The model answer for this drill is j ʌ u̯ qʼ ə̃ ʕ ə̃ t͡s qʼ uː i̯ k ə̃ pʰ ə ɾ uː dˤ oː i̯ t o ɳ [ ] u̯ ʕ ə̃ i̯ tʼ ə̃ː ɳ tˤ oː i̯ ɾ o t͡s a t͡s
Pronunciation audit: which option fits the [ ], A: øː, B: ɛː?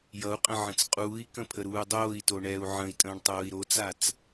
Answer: B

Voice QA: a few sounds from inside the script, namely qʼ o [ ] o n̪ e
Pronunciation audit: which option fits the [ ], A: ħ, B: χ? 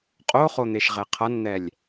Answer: B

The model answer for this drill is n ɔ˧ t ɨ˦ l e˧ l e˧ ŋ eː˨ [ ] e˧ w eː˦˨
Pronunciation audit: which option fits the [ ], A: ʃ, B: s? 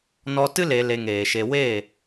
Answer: A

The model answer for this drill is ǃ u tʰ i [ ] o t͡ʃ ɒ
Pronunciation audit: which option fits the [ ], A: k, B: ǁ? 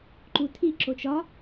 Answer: B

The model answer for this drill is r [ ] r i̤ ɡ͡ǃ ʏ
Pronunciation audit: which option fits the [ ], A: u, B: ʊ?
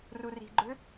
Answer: A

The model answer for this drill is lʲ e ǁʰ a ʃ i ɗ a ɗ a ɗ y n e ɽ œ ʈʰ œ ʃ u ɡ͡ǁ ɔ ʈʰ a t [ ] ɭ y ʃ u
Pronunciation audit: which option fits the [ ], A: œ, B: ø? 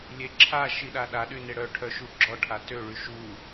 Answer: B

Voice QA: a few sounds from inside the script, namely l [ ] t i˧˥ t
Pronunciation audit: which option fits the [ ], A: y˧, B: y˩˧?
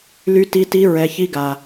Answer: A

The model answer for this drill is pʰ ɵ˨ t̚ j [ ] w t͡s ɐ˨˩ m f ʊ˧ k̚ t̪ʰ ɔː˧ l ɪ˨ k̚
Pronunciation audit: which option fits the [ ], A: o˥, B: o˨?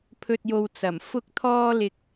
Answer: B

